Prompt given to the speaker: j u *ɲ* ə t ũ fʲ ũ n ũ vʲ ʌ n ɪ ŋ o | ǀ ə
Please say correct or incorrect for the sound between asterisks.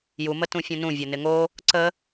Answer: incorrect